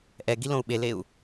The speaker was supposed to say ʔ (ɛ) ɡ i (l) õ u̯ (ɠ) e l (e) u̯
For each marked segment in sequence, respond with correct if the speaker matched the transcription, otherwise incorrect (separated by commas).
correct, correct, incorrect, correct